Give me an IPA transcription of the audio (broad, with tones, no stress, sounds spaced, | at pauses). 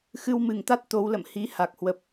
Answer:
x ɨ˧ w m ɨ˨˩ ŋ t̪ a˦˥ t̚ t̪ o˨˦ w l ə̰˧˨ m h i˨˦ h a˨˩ k̚ h w ə˨˩ p̚